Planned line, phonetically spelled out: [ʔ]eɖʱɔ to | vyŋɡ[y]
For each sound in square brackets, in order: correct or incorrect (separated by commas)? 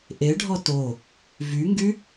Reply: correct, correct